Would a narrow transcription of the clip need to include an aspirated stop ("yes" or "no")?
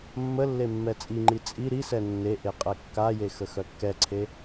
yes